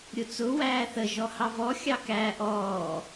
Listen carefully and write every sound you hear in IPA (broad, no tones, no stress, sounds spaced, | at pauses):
ɾʲ ʊ t͡s ʊ w æː θ ə ʒ ɔ h ɑ v ɔ xʲ ɑ k æː ʔ ɔː